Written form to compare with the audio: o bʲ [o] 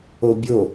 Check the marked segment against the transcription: correct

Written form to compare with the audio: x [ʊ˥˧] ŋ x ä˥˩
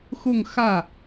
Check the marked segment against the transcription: correct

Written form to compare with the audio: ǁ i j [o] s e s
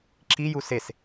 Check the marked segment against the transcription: incorrect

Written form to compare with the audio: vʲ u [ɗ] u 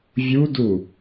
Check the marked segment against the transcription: incorrect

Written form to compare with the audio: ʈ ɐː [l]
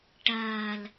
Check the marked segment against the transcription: correct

